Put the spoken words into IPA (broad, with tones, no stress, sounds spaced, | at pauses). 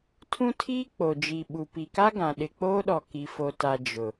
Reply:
tʰ ũ˦ tʰ iː˦ k͡p o˨ d͡ʒ i˨ ɓ u˨ p i˨ k a˦ ɡ ã˨ ɗ ɪ˨ k͡p oː˦ ɗ ɔ˨ k i˨ f o˨ t a˨ d͡ʒ ʊ˨